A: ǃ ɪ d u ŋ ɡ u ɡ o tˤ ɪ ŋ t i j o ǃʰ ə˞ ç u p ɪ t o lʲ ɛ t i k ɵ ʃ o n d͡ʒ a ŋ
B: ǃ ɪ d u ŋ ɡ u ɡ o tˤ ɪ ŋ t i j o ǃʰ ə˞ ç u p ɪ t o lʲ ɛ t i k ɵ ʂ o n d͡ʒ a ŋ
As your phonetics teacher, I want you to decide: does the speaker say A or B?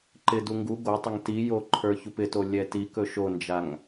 A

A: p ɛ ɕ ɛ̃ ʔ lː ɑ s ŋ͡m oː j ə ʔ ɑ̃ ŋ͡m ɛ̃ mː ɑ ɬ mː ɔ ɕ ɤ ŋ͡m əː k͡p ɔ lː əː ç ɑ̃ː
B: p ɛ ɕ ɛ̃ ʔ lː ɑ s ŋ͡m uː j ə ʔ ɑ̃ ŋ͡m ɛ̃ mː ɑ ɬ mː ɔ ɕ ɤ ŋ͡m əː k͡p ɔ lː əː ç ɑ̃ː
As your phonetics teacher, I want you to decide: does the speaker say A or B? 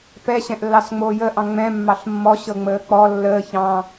A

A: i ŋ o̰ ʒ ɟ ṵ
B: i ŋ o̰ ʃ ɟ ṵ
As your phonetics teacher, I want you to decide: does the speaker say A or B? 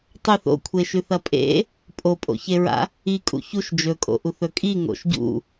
B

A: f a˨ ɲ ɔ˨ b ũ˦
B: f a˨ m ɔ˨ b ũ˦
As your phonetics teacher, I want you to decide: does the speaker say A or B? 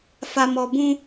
B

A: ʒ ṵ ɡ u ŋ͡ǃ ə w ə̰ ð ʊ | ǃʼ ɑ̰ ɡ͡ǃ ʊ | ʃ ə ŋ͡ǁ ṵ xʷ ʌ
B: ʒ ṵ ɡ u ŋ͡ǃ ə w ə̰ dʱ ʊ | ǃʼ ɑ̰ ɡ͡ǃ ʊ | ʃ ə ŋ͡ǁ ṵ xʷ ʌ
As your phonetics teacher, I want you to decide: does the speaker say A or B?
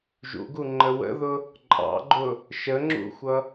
A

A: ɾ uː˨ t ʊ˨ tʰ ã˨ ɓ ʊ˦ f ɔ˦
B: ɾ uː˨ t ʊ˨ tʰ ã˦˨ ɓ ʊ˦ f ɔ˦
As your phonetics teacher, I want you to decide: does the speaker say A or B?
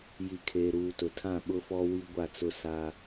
B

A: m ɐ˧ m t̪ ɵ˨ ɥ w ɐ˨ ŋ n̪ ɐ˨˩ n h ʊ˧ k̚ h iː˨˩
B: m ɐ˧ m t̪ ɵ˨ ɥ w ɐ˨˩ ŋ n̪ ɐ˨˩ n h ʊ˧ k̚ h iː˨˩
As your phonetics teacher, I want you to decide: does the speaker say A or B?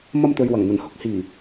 B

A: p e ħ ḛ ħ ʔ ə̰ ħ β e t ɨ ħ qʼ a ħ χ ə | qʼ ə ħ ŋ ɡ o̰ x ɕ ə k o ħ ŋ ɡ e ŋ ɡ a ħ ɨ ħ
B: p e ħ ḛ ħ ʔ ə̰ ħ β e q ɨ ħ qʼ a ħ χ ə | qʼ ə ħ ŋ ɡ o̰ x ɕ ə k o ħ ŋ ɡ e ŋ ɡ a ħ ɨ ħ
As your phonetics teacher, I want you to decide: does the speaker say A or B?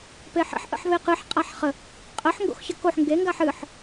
B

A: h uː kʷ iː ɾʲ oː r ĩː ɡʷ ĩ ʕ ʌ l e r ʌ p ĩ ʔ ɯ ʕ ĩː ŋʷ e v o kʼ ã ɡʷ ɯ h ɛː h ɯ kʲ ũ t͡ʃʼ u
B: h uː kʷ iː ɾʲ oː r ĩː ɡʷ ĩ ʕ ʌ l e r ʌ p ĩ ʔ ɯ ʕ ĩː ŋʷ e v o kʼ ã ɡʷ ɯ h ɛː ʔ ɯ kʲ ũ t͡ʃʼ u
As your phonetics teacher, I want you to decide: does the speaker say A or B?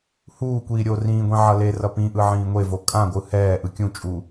B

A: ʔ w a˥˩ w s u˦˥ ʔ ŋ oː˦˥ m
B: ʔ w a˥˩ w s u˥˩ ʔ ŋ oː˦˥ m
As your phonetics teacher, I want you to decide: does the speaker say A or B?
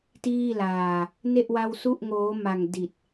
B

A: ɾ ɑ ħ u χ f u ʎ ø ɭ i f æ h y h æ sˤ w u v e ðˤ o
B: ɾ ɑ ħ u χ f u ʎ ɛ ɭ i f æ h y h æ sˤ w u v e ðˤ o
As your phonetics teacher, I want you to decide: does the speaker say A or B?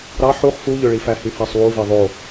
A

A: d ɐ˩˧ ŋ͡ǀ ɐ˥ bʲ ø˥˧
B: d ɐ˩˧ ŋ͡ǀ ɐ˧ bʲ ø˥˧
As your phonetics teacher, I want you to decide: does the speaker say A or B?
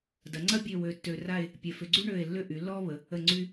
A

